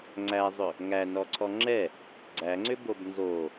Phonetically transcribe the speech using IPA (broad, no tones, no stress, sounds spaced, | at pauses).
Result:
ŋ͡ǀ æ zˤ ʏ | ŋ æ n ɔ ǀʰ ɔ ŋ͡ǁ ɛ | ɡ͡ǀ æ ŋ͡ǀ ʏ b o b n z o